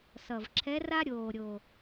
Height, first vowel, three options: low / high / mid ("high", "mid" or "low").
mid